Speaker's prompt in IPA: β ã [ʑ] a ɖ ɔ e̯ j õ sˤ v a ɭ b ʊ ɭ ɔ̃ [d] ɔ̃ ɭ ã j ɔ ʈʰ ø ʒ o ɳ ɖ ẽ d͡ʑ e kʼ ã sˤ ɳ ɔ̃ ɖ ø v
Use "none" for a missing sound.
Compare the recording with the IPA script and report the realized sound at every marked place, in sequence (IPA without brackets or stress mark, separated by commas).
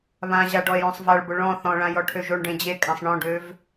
ʑ, θ